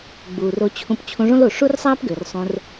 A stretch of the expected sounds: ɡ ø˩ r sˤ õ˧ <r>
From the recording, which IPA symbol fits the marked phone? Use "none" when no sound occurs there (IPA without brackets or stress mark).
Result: r